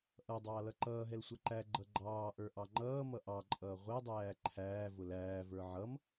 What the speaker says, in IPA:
ʔ ʌ dˤ ɑː l ʌ ǃ ʌː ɦ ɛ l sʷ ʌ ǃ æ ɡ͡ǃ ʌ ɡ͡ǃ ɑː ʔ ə˞ ʔ ɑ ŋ͡ǃ ʌː m ʌ ʔ ɑ ǃʼ ʌː ʁʷ ɛ dˤ æː ǃʰ æː v ʊ l æː v ə˞ ʕ ʌ m

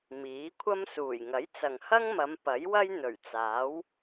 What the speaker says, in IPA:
m iː˨˥ kʷʰ ɐ˥ m s uː˨˩ j ŋ ɐ˨˥ j t͡s ɐ˨ ŋ h ɐ˥ ŋ m ɐ˨˧ m p ɐ˨˥ j w ɐ˥ j n̪ ɵ˨˩ ɥ t͡s aː˨˥ w

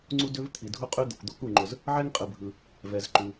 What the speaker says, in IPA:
ŋ͡ǀ u˥ d ʏ˥ v t̪ʰ i˩ dʱ u˥ qʼ ʉ˥ d̪ ə˩ kʷ d̪ o˥ k u˩ ŋ͡ǃ ʊ˩ z | ʕ ɛ˥ ŋ qʼ ɯ˩ bʱ ɯ˩ | v ɛ˩ z ǃ ʉ˩

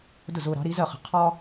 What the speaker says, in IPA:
d ʊ˥˩ z ʊː˧ ɾ ɑ̤˩˥ ɾ i˩˥ z ɜ˥˩ χ ə̤˩˥ qʰ ɒ˥

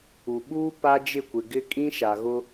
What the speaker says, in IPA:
u˨ ɓ uː˦ p a˦ d͡ʒ ɪ˦˨ kʷ ɪ˨ ɡ ɪ˦ kʼ ĩ˦ ʃ a˨ ɣ ʊ˦

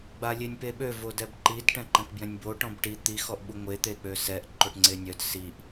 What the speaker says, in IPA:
ɡ͡b a lʲ e nʲ p e ɓ ø v o d ɛ b ǃ i d ʈ ɛ̃ ǃ ɛ̃ k b j ɛ̃ nʲ b o ʈ ɔ̃ b ʈ i t̪ i x ɔ ʔ ɓ u ŋʷ e t̪ e k͡p ø s ɛ ʔ ǃ o ʈ ŋ͡ǀ e nʲ œ d s i ʔ

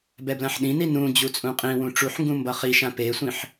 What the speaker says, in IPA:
b ɛ b l ã ħ ɗ ĩ n i n ũ d͡ʑ u t͡sʼ ũ qʼ ĩ w ũ ʈ͡ʂ u ħ ŋ ɡ ũ m b ʌ χ i ʃ ã p e sʷ ĩ ħ

